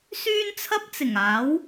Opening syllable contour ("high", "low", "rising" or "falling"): high